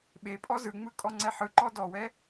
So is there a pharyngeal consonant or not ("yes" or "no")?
yes